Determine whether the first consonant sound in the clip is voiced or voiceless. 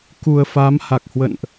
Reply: voiceless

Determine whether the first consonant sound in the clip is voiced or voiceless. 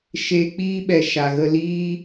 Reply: voiceless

